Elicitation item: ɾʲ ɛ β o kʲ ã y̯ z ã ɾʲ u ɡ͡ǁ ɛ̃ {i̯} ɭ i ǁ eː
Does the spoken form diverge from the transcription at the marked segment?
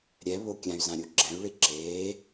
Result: yes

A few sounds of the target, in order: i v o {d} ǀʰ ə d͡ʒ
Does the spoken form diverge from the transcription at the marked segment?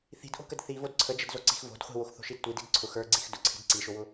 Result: no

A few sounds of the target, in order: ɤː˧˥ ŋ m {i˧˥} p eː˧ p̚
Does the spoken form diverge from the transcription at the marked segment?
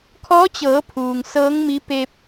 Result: no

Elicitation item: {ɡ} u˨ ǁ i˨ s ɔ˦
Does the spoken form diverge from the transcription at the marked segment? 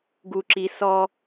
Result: no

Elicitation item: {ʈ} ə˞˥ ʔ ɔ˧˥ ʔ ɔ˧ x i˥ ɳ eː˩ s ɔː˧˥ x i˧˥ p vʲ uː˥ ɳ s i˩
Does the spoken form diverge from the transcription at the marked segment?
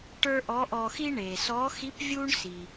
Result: no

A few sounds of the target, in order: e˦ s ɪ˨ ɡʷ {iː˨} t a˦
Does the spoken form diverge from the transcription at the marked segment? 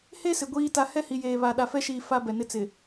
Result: yes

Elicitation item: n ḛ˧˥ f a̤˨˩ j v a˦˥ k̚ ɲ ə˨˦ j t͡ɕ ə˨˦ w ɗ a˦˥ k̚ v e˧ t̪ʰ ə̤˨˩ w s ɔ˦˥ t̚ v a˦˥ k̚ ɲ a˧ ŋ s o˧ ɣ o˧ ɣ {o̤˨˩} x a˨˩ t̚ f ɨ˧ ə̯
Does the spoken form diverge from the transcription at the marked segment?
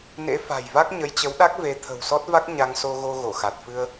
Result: yes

